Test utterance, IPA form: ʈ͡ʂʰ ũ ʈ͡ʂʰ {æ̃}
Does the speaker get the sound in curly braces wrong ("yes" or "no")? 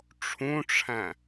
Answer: no